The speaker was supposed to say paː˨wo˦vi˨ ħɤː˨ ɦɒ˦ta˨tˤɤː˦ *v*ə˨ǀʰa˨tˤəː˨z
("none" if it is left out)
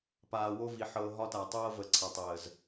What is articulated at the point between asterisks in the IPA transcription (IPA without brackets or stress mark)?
v